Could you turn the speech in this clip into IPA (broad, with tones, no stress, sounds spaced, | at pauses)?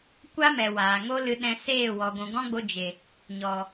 kʷ a˦ m ɛ˨ w aː˨ ŋ o˦ l ɨ˧ ɗ ɛ̃˧ s eː˦˨ w ɔ˨ ɡʷ ũ˨ ɡ ɔ̃˦ ɡ͡b o˧ d͡ʒ e˨ | ɲ ɔ˨